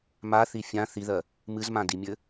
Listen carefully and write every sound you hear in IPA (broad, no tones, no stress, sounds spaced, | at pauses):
m a θ i fʲ ã θ i ð ɜ | m ɨ z m ã d i mʲ ɘ